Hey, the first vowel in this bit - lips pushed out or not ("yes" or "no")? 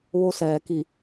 yes